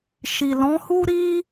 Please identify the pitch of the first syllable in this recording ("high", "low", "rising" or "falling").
low